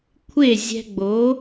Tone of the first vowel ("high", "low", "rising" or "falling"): falling